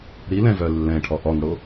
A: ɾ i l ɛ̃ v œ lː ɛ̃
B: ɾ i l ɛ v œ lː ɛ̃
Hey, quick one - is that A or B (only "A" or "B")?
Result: A